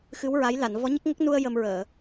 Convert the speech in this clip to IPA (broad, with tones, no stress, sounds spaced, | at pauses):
x ɨ˧˥ w ɹ a˧˥ j l a˨˩˨ n v ɔ˧˥ ɲ ə˦˥ k̚ ŋ ə˦˥ k̚ n u˧ ə̯ j ə˧ m ɹ əː˨˩˨